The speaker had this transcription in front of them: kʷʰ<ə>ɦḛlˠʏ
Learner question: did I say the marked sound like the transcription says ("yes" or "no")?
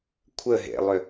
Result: yes